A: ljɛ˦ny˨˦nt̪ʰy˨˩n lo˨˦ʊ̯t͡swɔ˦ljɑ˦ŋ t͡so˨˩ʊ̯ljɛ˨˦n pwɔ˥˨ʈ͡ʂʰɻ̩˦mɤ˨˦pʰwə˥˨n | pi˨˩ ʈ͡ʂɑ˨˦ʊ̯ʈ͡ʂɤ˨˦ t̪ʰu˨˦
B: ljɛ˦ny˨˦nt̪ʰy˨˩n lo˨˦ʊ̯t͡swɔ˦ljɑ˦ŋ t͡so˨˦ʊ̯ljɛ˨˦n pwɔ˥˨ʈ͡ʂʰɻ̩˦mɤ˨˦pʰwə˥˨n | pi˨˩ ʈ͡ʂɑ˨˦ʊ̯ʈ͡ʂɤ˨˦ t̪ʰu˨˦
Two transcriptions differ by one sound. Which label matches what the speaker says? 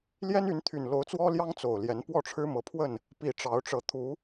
A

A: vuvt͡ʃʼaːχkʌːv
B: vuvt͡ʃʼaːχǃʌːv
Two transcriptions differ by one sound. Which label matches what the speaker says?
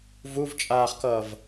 A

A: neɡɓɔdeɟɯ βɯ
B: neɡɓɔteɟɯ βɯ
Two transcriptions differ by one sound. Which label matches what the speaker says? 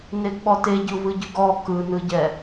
B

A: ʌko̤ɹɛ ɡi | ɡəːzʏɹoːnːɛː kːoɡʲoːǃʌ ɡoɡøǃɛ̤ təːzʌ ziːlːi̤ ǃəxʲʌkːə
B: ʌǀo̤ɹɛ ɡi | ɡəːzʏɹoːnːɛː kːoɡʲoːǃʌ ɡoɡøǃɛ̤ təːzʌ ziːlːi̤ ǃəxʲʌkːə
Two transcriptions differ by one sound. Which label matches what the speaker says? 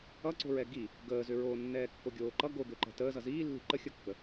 B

